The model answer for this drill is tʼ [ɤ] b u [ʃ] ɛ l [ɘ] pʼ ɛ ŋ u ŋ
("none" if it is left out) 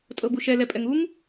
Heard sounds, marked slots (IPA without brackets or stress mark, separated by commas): ɤ, ʃ, ɛ